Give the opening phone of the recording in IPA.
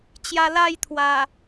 t͡ɕ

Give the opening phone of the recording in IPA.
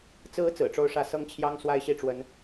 t͡s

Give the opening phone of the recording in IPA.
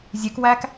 zʲ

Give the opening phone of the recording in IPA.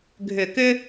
ɡʱ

